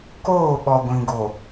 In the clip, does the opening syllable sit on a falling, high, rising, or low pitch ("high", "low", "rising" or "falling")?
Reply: falling